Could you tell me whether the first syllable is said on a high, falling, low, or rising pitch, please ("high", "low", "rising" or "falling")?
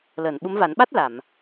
low